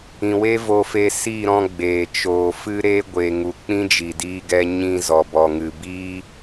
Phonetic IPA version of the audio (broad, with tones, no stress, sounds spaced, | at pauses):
ĩ˨ w e˦ v o˧ f e˧ s i˦˨ ɾ ɔ̃˧ ɡ͡b eː˨ t͡ʃ oː˨ f ɨ˦ ɾ e˦ ɡʷ e˨ ŋ u˨ k͡p ĩ˦ d͡ʒ i˨ d iː˧ ɡ ɛ˧ ɲ ĩ˧ z ɔ˨ b ɔ˨ ŋ ɨ˨ b iː˦